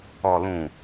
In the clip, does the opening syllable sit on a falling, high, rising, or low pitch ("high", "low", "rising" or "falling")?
low